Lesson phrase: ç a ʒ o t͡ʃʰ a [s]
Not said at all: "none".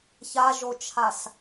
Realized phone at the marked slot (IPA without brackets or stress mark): s